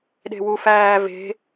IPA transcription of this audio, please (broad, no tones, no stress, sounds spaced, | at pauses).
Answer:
ɗ e̤ w u f æː v e̤